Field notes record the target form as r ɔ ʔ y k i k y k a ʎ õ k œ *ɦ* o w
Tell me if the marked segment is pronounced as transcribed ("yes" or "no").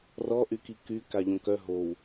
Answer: yes